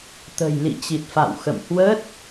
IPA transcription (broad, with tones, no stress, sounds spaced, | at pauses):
t̪ ə̤˨˩ j l ḭ˧˨ t͡ɕ i˨˩ t̚ f a̰˧˨ w x ə̰˧˨ m h w ə˦˥ t̚